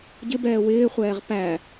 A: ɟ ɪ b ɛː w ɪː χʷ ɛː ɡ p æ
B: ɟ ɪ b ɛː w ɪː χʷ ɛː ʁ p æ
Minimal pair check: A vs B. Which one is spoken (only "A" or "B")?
B